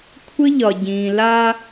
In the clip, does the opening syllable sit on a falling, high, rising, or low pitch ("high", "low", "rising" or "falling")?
high